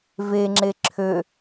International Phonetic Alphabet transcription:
v e ŋ͡ǁ e ǁʰ ø

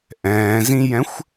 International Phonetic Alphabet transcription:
ʔ ɛ̃ː z ĩ j ɛ̃ xʷ

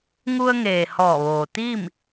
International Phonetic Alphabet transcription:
ŋ u˧ ə̯ ŋ eː˩ h ɔː˧˩ ʋ oː˩ t̪ iː˥˨ m

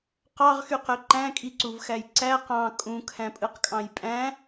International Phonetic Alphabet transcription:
q ɑ ʁ x y q ø ǃ æ̃ kʼ i ǀ u v x æ j ǀ æ q ɑ̃ kʼ ũ kʰ æ̃ pʼ ɯ q kʼ ɑ̃ j pʼ æ̃

